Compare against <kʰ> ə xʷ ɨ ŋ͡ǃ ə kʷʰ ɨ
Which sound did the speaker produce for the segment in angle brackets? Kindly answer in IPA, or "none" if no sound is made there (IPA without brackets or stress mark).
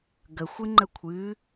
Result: ɡ